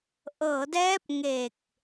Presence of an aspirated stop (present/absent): absent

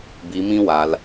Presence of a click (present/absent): absent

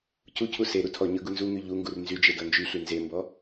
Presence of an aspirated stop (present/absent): present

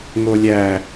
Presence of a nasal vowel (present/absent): absent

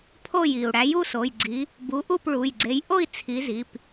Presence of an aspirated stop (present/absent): present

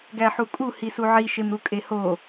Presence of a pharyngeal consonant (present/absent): present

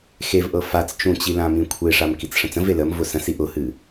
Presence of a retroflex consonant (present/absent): present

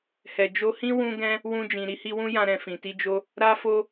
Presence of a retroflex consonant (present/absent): absent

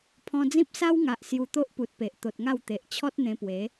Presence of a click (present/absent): absent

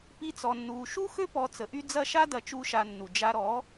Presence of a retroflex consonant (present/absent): absent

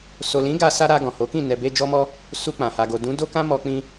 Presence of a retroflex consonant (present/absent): absent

